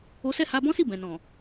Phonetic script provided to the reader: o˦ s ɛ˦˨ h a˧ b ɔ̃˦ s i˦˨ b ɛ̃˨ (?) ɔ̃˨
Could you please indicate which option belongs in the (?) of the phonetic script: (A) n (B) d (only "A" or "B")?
A